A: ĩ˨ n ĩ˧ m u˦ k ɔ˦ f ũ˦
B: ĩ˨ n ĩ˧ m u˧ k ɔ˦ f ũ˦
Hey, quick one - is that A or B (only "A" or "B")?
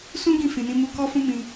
B